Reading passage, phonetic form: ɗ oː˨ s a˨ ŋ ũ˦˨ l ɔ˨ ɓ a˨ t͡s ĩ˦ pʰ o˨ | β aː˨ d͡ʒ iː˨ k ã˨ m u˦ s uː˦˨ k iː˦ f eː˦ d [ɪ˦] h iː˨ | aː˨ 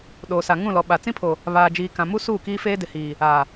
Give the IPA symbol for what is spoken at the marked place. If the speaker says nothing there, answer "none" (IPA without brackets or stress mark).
ɪ˨